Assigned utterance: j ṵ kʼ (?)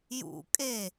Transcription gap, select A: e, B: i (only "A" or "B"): A